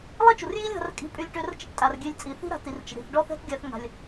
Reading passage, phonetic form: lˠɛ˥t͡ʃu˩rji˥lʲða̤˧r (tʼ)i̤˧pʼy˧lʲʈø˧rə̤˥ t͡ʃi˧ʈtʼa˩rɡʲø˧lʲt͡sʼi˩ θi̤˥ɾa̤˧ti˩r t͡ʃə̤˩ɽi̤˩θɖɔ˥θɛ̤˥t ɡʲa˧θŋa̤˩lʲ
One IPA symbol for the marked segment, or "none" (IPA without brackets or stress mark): kʼ